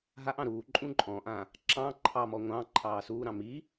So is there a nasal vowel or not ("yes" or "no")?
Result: yes